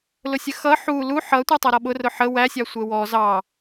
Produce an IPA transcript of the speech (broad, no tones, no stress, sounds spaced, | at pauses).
l ʊ sʲ ə x ʌ ħ u l u ħ ʌ tʷ ɛ tˤ ʌ ɾ ɔ ɓ ʊ r ʊ ħ ə w æ sʲ ɑ sʷ ɛ w ɔ z ɑ